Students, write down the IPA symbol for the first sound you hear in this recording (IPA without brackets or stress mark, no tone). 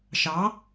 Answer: ʃ